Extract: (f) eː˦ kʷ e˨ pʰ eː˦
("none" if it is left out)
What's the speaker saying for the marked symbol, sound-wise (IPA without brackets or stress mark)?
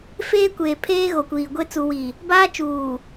f